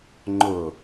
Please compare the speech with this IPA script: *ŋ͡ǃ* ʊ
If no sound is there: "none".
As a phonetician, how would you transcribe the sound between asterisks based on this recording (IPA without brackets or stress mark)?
ŋ͡ǃ